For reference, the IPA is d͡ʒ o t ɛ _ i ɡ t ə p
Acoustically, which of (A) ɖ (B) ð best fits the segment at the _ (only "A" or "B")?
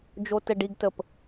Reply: A